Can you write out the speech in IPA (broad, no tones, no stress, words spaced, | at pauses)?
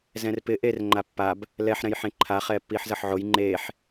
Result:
zɛ̃rpɪ ʔerŋ͡ǃa pːab | lɛħɾɛ̃j ħẽǃʰa χɛːpːiːħzʌħʕoj ŋ͡ǃeːħ